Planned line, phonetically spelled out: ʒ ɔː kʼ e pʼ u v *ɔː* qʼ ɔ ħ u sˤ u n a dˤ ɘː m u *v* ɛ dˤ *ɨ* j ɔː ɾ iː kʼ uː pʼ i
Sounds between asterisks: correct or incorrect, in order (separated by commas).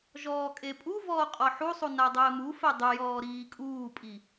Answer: correct, incorrect, correct